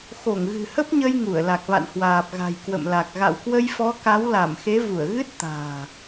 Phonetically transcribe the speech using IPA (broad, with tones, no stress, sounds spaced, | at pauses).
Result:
x o˧˩ ŋ ɣ ɨ̤˨˩ h ə˦˥ p̚ ɲ ə˧ j ŋ u˧˩ ə̯ l a˨˩ k̚ v a̰˧˨ n h w aː˨˩ p̚ ɣ a̤˨˩ j k w ə̰˧˨ m l a˨˩ k̚ ɣ a̰˧˨ w k w ə˧ j f ɔ˨˦ k a˨˦ w l a˧˩ m x e˨˦ v u˧˩ ə̯ ɣ ɨ˦˥ t̚ t̪ a̤ː˨˩